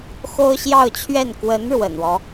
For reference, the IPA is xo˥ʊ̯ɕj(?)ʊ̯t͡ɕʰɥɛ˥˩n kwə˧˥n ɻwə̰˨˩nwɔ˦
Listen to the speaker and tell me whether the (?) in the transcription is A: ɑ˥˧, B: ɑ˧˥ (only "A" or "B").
A